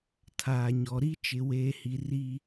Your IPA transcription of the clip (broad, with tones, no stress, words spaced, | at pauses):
tʰaː˨ɲɔ˨ɾi˦ t͡ʃɪ˨weː˨hi˨ ri˦